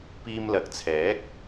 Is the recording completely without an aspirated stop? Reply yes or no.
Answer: no